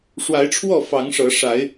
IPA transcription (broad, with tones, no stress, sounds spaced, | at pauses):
ʂ w a˨˦ ɪ̯ ʈ͡ʂʰ w ɔ˥˨ f ɑ˨˦ ŋ ʂ ɤ˨˦ ʂ a˨˦ ɪ̯